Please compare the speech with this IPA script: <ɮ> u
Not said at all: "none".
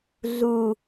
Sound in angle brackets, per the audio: ɮ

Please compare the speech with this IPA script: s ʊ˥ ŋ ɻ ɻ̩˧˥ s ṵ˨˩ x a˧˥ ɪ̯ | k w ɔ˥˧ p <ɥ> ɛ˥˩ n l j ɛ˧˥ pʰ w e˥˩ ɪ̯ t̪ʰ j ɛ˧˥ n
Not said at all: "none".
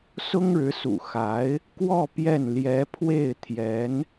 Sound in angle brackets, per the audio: j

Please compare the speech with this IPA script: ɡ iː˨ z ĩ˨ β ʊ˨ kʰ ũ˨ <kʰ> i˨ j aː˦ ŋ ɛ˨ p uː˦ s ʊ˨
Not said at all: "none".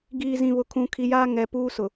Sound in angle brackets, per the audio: kʰ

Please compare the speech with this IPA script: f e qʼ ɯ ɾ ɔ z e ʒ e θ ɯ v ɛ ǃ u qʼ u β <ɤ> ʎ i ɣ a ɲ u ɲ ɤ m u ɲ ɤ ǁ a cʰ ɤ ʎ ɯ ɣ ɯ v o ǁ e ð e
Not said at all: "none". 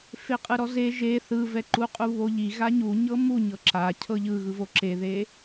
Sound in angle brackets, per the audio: o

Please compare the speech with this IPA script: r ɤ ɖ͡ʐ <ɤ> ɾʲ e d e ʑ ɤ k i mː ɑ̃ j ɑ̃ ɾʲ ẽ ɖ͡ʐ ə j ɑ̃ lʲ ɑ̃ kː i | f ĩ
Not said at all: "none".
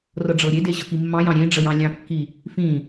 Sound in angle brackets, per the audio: ɤ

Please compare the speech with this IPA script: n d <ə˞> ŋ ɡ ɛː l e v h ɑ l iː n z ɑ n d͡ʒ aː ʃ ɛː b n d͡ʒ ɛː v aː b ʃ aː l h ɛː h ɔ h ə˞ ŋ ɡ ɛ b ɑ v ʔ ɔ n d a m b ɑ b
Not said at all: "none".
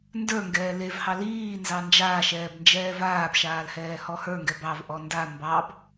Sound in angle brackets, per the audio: ə˞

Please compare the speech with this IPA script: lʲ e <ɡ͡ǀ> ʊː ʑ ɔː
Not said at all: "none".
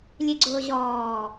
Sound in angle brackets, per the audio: ɡ͡ǀ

